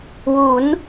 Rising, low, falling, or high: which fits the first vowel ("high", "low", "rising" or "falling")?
rising